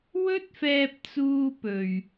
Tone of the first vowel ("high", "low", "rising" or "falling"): high